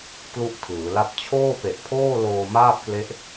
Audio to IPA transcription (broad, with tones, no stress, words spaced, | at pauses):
klu˥˩ʔtʰɯː˩˦la˥˩p̚ t͡ɕʰoː˥˩pe˨˩ʔpʰoː˥˩ loː˧maː˥˩p̚kle˦˥ʔ